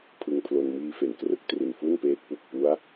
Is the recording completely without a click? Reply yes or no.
yes